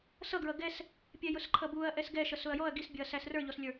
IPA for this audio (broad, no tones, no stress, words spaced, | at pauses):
sʌɡɹʌ ɡɛs | pʲɛjʊsǃʰʌbuɐ̯ ʔɛsɡɛʃʌs ʊɐ̯jɔɐ̯ ɡisbʲʊɐ̯ sæsrə˞ʎɔslʲə˞